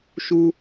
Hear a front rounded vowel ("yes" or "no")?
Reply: no